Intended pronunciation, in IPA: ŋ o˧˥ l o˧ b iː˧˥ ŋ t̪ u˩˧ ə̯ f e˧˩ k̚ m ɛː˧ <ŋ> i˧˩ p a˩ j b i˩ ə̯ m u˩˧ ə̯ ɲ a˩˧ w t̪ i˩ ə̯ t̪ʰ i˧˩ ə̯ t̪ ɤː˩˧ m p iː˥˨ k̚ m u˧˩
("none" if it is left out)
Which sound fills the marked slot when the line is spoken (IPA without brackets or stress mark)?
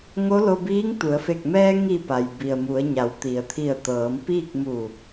ŋ